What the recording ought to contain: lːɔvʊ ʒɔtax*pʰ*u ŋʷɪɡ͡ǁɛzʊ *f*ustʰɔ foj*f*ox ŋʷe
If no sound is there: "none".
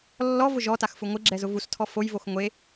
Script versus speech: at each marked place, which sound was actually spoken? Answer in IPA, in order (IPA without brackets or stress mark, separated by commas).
f, v, v